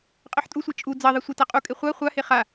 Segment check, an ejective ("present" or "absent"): present